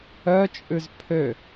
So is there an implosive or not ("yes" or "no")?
no